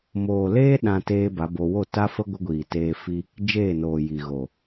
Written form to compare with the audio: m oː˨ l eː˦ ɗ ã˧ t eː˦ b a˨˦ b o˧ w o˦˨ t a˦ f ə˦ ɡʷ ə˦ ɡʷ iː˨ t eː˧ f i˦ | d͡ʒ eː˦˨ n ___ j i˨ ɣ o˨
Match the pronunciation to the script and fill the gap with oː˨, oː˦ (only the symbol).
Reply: oː˨